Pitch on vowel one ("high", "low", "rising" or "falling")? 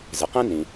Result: low